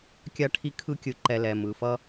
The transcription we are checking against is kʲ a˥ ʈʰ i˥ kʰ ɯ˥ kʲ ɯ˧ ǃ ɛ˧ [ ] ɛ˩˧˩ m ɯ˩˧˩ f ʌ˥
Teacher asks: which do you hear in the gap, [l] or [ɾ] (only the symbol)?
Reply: l